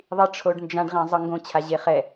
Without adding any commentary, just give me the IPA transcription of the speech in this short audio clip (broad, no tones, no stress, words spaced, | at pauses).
ðˤiʈ͡ʂʰoɖnd͡ʒãɖ ʁẽzˤɯŋɡõ t͡ɕʰaʑeχɛ